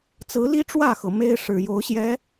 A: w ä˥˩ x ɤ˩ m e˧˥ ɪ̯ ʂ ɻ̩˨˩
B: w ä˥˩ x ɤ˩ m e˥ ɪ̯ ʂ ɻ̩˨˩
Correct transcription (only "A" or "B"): B